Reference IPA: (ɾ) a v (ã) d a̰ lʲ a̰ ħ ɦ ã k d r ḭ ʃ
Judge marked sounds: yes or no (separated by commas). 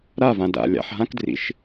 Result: yes, yes